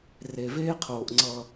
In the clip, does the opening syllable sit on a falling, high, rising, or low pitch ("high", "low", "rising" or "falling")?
low